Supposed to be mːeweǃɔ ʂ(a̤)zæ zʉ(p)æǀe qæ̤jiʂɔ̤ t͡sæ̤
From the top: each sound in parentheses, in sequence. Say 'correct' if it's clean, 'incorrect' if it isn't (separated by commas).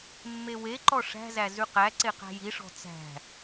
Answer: incorrect, incorrect